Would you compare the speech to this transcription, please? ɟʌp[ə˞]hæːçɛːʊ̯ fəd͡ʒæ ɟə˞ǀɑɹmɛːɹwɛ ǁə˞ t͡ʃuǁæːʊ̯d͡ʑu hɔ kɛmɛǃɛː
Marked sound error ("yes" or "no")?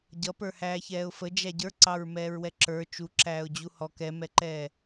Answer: no